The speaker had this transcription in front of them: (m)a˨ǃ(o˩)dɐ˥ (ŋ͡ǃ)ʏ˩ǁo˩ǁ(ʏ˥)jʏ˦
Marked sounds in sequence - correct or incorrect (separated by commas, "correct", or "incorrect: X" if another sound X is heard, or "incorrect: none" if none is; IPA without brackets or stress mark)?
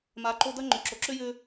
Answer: correct, incorrect: o˦, correct, correct